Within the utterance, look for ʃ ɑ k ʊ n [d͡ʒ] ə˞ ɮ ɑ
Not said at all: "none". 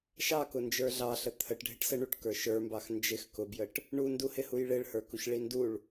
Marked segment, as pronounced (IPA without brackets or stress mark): d͡ʒ